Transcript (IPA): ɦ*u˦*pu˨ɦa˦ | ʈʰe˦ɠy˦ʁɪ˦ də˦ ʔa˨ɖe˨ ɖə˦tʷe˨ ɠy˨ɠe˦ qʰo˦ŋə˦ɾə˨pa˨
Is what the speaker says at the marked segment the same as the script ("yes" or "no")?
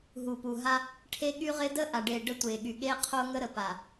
no